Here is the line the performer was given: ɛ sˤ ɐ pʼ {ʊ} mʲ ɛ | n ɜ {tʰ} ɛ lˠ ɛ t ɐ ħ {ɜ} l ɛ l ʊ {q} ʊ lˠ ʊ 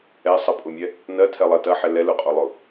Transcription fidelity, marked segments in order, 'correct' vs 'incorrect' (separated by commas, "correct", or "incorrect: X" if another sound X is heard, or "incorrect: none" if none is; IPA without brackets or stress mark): correct, correct, incorrect: ɛ, incorrect: qʼ